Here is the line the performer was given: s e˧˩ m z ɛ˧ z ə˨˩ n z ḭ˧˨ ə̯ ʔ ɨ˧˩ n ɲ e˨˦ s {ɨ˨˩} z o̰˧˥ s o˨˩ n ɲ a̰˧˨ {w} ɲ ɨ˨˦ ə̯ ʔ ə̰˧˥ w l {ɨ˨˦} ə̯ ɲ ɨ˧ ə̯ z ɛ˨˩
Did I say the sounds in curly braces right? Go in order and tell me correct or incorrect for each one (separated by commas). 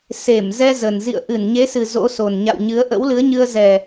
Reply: correct, correct, correct